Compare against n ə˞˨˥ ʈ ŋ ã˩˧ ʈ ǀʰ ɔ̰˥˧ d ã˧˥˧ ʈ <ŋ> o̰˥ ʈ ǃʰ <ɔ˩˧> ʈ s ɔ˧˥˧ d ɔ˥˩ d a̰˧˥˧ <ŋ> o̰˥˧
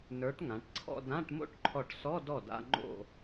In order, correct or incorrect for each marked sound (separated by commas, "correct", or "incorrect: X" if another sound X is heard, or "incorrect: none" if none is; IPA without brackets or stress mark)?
incorrect: m, incorrect: ɔ˥˩, incorrect: ŋ͡ǃ